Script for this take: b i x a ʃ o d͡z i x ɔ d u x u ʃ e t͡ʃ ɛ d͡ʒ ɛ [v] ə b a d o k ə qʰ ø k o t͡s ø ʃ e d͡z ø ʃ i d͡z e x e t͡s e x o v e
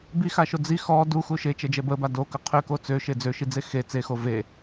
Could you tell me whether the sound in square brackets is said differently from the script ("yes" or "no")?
yes